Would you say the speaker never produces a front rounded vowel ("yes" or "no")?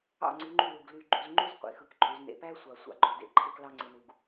no